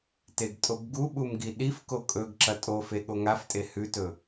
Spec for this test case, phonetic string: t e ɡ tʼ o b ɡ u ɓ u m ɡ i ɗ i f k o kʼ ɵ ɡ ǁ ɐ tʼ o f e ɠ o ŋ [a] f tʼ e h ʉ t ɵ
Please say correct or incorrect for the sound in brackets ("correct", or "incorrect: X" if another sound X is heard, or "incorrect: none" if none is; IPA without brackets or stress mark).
correct